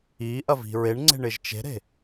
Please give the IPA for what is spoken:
iʔɐvi̤ ɹeɳŋ͡ǀe̤ɳɪʒ t͡ʃe̤ɾe̤

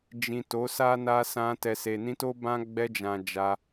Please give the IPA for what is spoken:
d͡ʒĩ˨ to˨˦sa˦ na˧sã˧ tɛ˨se˨nĩ˧ to˦bã˦ ɡ͡bɛ˧d͡ʒã˨ d͡ʒa˧

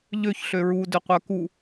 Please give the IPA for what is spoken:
ʎøç ɬøɹu døqʷœku

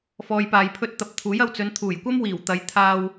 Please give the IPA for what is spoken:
fɔː˨jpaː˨jpʰɵ˧t̚ t̪ɐ˨p̚ t̪ʰuː˨˥jɐ˧wt͡sɵ˨˧n t̪ʰuː˨˩jkʷɐ˥m wiː˨˩w t̪ɐ˨˧j t̪ʰaː˧w

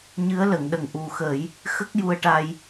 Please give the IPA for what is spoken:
ɲɨ˧˥ə̯lə˨˩˨ŋɗə˨˩ŋ ʔu˨˩xə˨˩˦j | xə˦˥k̚ju˧ə̯ʈa˧j

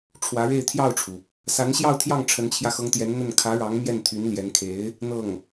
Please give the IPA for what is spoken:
ʈ͡ʂʰwä˧˥ɻe˥˧ɪ̯ t̪ʰjɑ˥˩ʊ̯ʈ͡ʂʰu˩ | sa˧˥nɕjɑ˥˧ʊ̯t̪ʰjɑ˥˩ŋ ʈ͡ʂʰə˧˥nt͡ɕʰjä˧xɤ˧˥ŋt̪jɛ˧˥n n̪ə˥˩n kʰä˧˥ɻɑ˧˥ŋ mjɛ˥˩nt̪ʰy˧˥n ljɛ˧˥n kʰe˧˥ɪ̯ | n̪ɤ˥˩ŋ

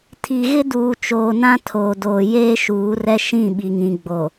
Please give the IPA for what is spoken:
tʰi˨ɣɪ˦ duː˨t͡ʃoː˨ nã˦tʰoː˨doː˨ jeː˦ʃuː˨˦rɛ˦ ʃĩ˦˨ɓi˨ŋĩ˨ɡ͡bo˨

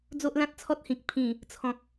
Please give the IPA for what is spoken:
d͡zo˦ʔlã˦t̚t͡sʰɔ˦t̚hĩ˨k̚ pʰĩ˨˩ | t͡sʰɔ̃˨k̚

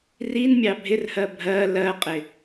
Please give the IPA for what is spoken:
rinmʲɑ bʱɪrhɜ bʱɜ lɜqʼɪ

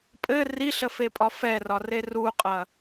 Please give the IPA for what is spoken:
pʼɘ riɬəfepʼɒ fɛrɒre ruqʼɐ

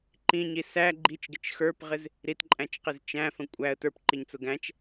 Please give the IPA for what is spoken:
ǃĩɲi sæ ɡ͡ǃit͡ʃɡɪt͡ʃ xə˞pʁɪz | ɾitǃʼæ̃t͡ʃqɪz t͡ʃæ̃fə̃ kʷʼæə̯ tə˞pǃiɲt͡sʊ ɡæ̃t͡ʃ

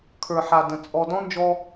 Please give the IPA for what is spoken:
kʰə˞˨ħa˨ də̃˨ t͡sʼɔ˨dɔ̃˦nd͡ʒɔ˧

